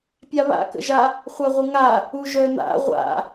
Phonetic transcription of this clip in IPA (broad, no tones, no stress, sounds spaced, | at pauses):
pʲ a β a̰ k ə̰ ʒ a | χʷ a ʁʷ ə ŋ a | u ʒ œ n̪ a̰ ʁʷ a̰